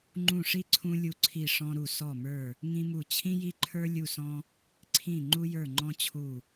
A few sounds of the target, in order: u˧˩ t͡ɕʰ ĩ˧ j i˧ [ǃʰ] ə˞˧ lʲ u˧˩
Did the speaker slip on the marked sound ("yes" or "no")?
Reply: no